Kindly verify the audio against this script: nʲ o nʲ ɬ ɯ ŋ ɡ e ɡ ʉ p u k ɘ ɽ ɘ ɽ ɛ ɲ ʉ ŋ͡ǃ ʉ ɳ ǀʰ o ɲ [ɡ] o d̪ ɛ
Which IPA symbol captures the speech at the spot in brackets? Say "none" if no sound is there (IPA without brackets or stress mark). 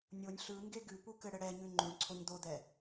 d̪